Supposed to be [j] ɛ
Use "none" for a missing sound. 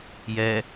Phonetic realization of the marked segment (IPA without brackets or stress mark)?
j